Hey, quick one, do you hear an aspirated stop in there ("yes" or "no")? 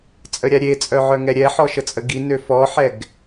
no